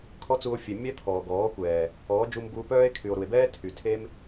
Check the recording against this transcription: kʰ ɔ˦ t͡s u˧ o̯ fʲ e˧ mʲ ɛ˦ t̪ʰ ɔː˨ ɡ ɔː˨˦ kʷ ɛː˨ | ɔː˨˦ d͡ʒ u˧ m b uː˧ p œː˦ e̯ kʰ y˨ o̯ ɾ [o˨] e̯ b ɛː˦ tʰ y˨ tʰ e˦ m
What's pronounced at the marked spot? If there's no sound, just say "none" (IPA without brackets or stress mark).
u˨